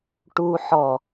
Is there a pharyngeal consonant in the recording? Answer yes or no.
yes